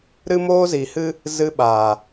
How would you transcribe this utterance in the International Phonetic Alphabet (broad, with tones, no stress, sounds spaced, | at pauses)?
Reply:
ɾ ɨ˦ m oː˦ z i˨ h ɨ˦ | z ɨ˧ ɓ aː˨